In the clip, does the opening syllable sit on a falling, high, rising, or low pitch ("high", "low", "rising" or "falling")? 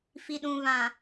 low